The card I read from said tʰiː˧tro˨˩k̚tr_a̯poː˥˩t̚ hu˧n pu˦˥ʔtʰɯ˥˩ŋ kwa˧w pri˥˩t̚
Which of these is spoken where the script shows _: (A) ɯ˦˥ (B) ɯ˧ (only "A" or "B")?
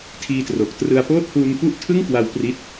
B